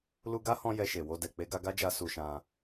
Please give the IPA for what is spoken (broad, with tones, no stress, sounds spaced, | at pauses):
l u˧ ɡ a˦ h ɔ̃˧ j ɛ˧ ʃ e˨ w o˧ d ɛ˨ k͡p e˧ ɡ a˧ ɡ a˦ d͡ʒ a˧ s u˧ ʃ ã˧